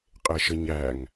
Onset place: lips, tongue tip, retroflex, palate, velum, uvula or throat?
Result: uvula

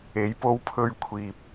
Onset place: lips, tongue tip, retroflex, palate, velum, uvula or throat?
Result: palate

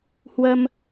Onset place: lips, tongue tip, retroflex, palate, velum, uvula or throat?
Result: throat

